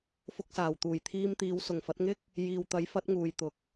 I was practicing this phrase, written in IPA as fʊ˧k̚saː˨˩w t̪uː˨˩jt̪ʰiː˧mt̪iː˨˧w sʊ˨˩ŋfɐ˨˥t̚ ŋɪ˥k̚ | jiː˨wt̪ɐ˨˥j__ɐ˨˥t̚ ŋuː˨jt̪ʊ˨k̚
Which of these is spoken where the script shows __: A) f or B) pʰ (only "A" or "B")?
A